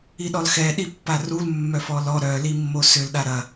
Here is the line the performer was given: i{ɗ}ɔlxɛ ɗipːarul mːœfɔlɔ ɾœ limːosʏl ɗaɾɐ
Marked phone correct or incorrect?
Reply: correct